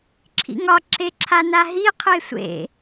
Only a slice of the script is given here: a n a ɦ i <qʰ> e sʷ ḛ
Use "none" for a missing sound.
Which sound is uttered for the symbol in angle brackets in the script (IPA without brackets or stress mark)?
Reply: qʰ